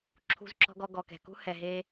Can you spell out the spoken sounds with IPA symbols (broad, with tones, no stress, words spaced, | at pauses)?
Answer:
ǁʰṳ˧zǁɔ̤˧ɡɔ˧ɡɔ˨ kɛ̤˨kṳ˦ hɛ˨ɦe˧